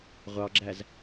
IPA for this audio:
ʁʷɑɡ͡ǁæz

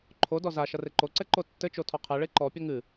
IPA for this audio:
ǃʰodɔ za ʃɐreǃoǀɛ ǃotːɘt͡ʃo tʰɔqʰɛɭe ǃɔpʲɐ ŋɨ

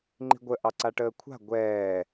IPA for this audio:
ŋ͡ǃi̤ɡʷə ʔɑǀaʈəːkʷʰa̤ ɡʷɛː

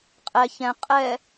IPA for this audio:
qʼɛ çɛ̃ qʼɛ

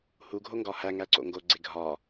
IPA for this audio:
hu ɡʱoŋɡɒhæ ŋæǀo̰ŋɡo ɡ͡ǀeɡʱɒ

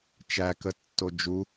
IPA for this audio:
t͡ʃækətːo d͡ʒu

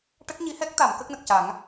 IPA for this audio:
ʈə˦˥k̚ɲi˧˥hɛ˦˥k̚t̪a˨˩˨m kə˦˥k̚nə˨˩k̚ca˨˩˦ŋ

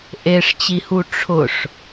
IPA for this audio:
ʔeʂt͡ɕihu ʈ͡ʂʰʊʂ

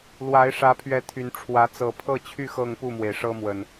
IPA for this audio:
lwa˨˦ɪ̯ʂä˨˦pʰɥɛ˨˦ t̪ʰy˨˩nʈ͡ʂʰwä˨˦ t͡sɤ˨˩pʰɤ˥˨t͡ɕʰy˥˨ xɤ˥˨ŋpu˥˨mwe˩ɪ̯ʂɤ˦ mwə˨˩n

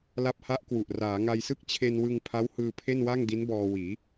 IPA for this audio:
la˦˥p̚ha˦˥ʔkwu˨˩ʔ raː˩˦ŋa˧jsɯ˥˩k̚ t͡ɕʰe˧nwɯ˧ŋ pʰa˦˥whɯː˧ pʰe˥˩nwa˥˩ŋdi˦˥nbɔː˧ wiː˩˦

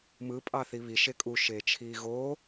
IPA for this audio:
mɯ pʼɑθiβi ʃekʼu ʃeːt͡ʃʰiːɣo

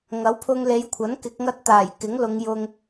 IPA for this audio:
ŋɐ˨˥wpʰʊ˧ŋle˨˧jkʷʰɐ˨˥n kɪ˨˥k̚ŋɐ˥t̚t̪aː˨˩j kɪ˨˥ŋlʊ˨˧ŋjʊ˧ŋ

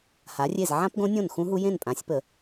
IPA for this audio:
ha˩˥rʲe˥˩z ʕã˦˥pɡõ˦˥nʲõ˥˩n xũ˦˥ɦu˦˥ jẽ˥˩npʼã˩˥sʲpə˨˩˦

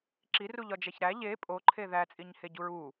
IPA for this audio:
ǁiruʎɒd͡ʒæç ɾæ ʎe pʼoǃʰe ðæt͡sʼiɲheɟuɹ u

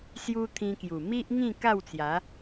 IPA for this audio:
sju˦ t̪ʰĩ˧kju˨˩ mi˦ʔ ŋĩ˥˧ ka˥˧wt͡sja˨˦

